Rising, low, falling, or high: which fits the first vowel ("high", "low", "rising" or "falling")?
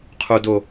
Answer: low